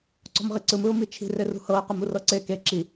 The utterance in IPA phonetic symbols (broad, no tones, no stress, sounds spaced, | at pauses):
ǀ ɔ̤ m ʁ i ǀ ɯ m ɯ ʊ̯ m i t͡ʃʰ i̤ r e r ṳ h ɤ ɪ̯ q ɯ m u r ɤ ǀ e k e ǁ i